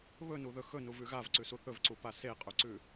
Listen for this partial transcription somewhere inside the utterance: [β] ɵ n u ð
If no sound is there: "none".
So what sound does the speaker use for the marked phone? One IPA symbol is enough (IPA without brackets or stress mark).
β